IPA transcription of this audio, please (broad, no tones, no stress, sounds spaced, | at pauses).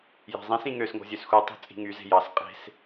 j æ̤ zˤ ĩ s ĩ ŋ ø s ŋ o̤ zʲ ø s x u tˤ o̤ t͡sʼ i̤ ŋ y z e̤ j ɑ s qʼ e̤ s